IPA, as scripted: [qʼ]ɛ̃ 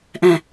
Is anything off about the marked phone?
yes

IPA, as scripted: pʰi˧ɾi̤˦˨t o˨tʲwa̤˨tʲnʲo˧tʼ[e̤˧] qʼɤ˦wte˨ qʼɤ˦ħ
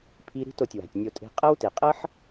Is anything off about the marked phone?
no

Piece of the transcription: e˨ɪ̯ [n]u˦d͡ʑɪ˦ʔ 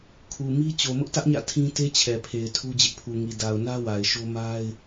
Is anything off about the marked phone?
yes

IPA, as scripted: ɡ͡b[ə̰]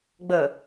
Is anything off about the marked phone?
yes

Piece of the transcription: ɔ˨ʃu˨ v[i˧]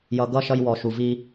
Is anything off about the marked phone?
no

